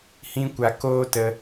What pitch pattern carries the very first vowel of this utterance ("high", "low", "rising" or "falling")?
high